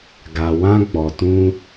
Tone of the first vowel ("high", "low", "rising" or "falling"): low